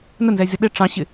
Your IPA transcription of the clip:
n ə n z ɛ zʲ ʌ ɗ ɪ ʈ͡ʂ ɑ̃ ɕ ɪ

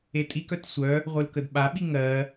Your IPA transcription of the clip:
e tʼ i k œ t sʷ œ | ʁʷ ɯ l k ə d ɓ a ɓ i ŋ ɜ

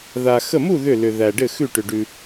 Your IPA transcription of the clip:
ð a˧ x ə˥˧ m u˥˧ ð ʏ˥˧ l ʏ˧ ð æ˧ ɖ ɘ˥˧ x ʉ˥˧ ʈ ʏ˧ ɖ ʉ˧

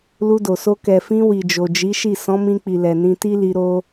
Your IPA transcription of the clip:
l u˧ d o˨ s o˧ k ɛ˨ f ĩ˧ w i˨ d͡ʒ o˨ d͡ʒ i˨˦ ʃ i˦˨ s ɔ̃˨˦ m ĩ˧ k͡p i˨ l ɛ˨ n ĩ˧ t i˦ l i˧ ɾ o˧

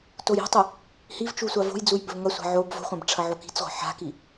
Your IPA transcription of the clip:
t o j i̤ tˤ ɨ | h i v t͡ʃ u sʷ a v o̤ j d͡z u j b ɵ v ŋ ɐ sʷ a̤ ʕ o b v o̤ χʷ ã b ʈ͡ʂʰ ɐ ʕ o k i̤ t͡s ʁʷ a̤ ħ a̤ k i

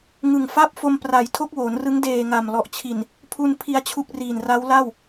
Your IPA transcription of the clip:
ŋ ɯ˨˩ ŋ f a˥˩ p̚ f o˧ m p r a˩˦ j tʰ o˦˥ k̚ w oː˩˦ n r ɯ˦˥ ŋ d eː˨˩ ŋ a˨˩ m l ɔ˨˩ ʔ t͡ɕʰ i˨˩ n | pʰ u˧ n pʰ i˧ a̯ t͡ɕʰ u˦˥ k̚ r iː˨˩ n r a˦˥ w l a˥˩ w

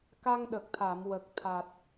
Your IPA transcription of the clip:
k a˧ ŋ ɗ ə˨˩ k̚ t̪ʰ a˨˩˨ m w ə˨˩ k̚ t̪ʰ a˨˩ t̚

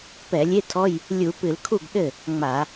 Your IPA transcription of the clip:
p ɛ˧˩˧ lʲ e˧˥˧ tʰ ɔ˧˥˧ j | lʲ u˧˩˧ p ɨ˧˩˧ l kʰ u˥˩ ɡ ɗ ɘ˥˩ | ŋ͡m a˧˩˧

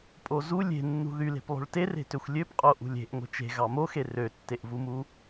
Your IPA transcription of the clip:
pʼ o z u lʲ e̤ nː ṳ ð y l e̤ p lˠ o̤ ɭ t e r e̤ t ø xʷ lʲ ø p qʼ o ʔ ṳ lʲ e̤ ʔ ŋʷ e̤ t͡ʃ e̤ ɣ ɑ m o x e r ø tː e ʔ v u m u

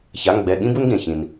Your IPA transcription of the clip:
ç a˩˧˩ ŋ ɡ͡b ɛ˩˧˩ ɠ ĩ˦ b u˦ n ɡ ẽ˩ ç ĩ˩ n

